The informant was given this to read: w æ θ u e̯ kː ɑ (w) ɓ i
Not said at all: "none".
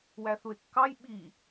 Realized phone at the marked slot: j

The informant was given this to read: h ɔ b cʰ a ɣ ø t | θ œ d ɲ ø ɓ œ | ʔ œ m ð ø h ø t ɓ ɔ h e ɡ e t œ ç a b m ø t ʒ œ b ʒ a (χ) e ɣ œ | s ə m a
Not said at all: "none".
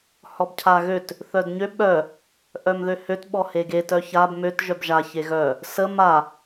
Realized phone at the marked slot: ç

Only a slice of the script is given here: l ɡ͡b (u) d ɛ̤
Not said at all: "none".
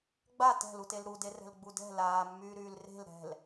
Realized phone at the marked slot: u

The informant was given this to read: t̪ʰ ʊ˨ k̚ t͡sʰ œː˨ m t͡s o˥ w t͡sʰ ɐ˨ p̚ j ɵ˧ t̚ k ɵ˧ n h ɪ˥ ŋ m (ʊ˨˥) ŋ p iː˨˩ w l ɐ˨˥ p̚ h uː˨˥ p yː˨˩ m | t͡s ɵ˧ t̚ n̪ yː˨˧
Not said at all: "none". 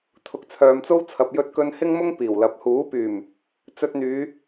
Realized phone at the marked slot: ʊ˥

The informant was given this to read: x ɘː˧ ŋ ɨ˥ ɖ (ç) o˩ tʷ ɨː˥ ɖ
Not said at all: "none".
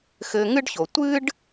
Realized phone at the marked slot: ç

